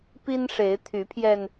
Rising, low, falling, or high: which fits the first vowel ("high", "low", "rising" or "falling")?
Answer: high